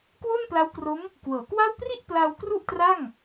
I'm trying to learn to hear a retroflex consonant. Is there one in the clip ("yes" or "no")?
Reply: no